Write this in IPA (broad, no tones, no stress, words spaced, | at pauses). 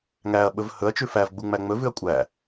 ŋæɐ̯ɓɵv hɵɐ̯t͡ʃʉ fævɡ͡bu ŋ͡mæŋ͡mɵvʉɐ̯ kʷʼæ